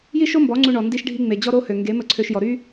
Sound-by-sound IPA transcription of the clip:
j i˦ ʃ o˦ m b ɔ˨˦ ŋ͡ǀ u˧ ɳ ɔ˨ n d i˧ ʃ ɖʱ i˧ ŋ͡m e˨ d͡ʑ ɔ˦ ɾ o˦ h ø˨ ŋ ɡ e˨˦ m ə˧ ǀʰ ø˧ ʃ j ɔ˨ ɾ y˦

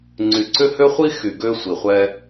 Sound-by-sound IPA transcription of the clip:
ŋ͡ǀ y˨ ǀ ʏ˦ h ø˦ χʷ i˦ x y˨ ɡ ø˦ sʷ i˨ χʷ ɛ˦

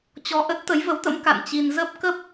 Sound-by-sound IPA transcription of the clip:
t͡ɕ ɔ˧ ʔ ə˦˥ t̚ t̪ ə˨˦ j v ə˨˦ w t̪ ə̰˧˥ m k a̰˧˨ n t͡ɕ i˧ n z ə˦˥ p̚ k ə˦˥ p̚

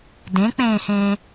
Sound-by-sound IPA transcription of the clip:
d ẽ k͡p ẽː h ẽː

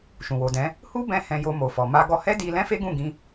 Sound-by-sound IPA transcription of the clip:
ʃ ũ˨ w o˨ d ɛ̃˨˦ | h u˦ b ɛ̃˧ h ɛ̃˧ j o˧ m o˨ f ɔ˨ m a˧ ɡ ɔ˧ h ɛ˦ d i˧ l ɛ̃˦ f e˦ ɡ ũ˦˨ ɡ ĩ˧

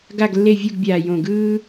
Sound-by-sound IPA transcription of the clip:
ɡ a˦˨ ɡ lː e˦˨ vʲ u˦˨ ɡ bʲ aː˨˩ j õ˨˩ ɡ ɯː˥

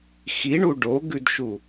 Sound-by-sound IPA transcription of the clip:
x i ɳ u ɖ o ɡ ʉ d ʃ u

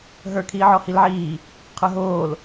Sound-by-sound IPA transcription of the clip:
ɦ ə˞ kʰ iː ʕ ɔ h i l ʕ iː | qʰ ə˞ ɦ oː l

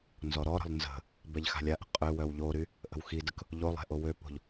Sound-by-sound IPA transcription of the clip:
n z ɔ ɾ ɔ ɾ ə̤ lˠ n z ə̤ | b ɛ ʎ x a̤ lʲ a ʔ ə̤ qʼ ø w œ w ʎ o ɾ y | ʔ ə̤ w x i d ə k | ʎ o lˠ ɛ̤ ʔ o w ø p o̤ ʎ

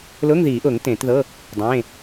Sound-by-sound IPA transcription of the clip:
l ʊː˧˥˧ ŋ ð iː˨˩˦ ʔ ʊː˨˩˦ ŋ t ẽː˨˩˦ t ð ɤ˧˥˧ | dˤ ẽː˧˥˧

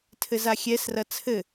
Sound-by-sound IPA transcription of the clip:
tʰ ɘ z a xʲ ɛ s r ɐ t͡sʰ ɘ

